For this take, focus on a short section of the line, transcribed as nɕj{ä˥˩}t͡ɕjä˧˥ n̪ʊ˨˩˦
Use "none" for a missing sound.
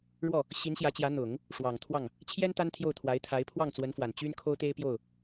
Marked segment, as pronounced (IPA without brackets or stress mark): ä˧˥